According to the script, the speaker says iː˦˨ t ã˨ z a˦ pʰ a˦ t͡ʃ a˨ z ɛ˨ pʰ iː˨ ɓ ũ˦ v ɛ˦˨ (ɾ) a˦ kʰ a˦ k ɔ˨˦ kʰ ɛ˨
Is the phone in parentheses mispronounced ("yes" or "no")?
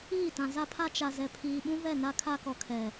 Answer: yes